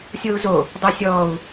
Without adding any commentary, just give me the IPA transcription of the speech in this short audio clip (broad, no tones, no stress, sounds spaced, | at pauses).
sʲ o u̯ z o | dˤ ɛ sʲ ɔː u̯